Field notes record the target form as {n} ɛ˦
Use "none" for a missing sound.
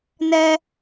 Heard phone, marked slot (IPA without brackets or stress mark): n